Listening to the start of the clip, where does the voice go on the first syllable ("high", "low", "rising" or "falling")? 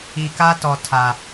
low